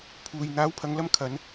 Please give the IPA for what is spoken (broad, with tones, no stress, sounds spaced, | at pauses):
pʰ uː˨ j n̪ aː˨˥ w pʰ ɐ˨˧ ŋ l ɐ˧ m kʰ ɐ˨˧ n